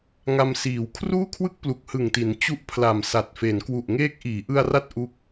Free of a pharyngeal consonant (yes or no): yes